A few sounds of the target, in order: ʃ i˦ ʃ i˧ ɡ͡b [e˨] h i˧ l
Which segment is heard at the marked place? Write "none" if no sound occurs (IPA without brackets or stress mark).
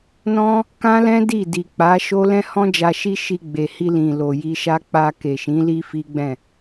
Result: e˨